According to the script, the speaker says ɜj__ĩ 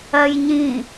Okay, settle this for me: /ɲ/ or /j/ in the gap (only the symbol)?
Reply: ɲ